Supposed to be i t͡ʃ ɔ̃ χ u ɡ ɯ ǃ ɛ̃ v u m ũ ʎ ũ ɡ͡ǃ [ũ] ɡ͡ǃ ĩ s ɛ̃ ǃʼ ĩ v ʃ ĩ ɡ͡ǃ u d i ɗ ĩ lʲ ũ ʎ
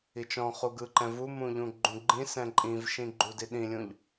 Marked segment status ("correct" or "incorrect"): correct